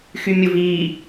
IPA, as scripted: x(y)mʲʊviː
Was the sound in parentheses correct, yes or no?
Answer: yes